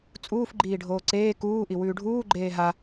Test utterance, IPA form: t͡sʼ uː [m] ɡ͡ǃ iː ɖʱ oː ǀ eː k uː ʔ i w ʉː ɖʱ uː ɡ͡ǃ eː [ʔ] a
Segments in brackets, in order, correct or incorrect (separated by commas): incorrect, incorrect